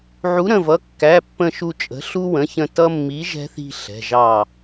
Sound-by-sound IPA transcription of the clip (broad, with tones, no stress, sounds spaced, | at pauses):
ʕ u˩˥ ɾ ə̃˩˧˩ v ʌ˩˧˩ kː æ˩˧˩ pː ə̃˧˩ ʃ u˧˩ t͡ʃʼ ə̤˩˥ ɬ u˧ w ə̃˩˧˩ ç ə̃˧˩ t ʌ˧ mː i˩˥ ʒ ɛ̤˧ θ i̤˧˩ ɬ ɛ̤˩˧˩ ʒ ɑ˧˩